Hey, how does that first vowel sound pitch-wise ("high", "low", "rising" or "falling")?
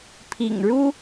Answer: low